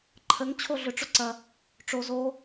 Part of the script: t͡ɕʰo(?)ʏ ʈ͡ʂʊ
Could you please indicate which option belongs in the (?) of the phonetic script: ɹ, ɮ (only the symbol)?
ɮ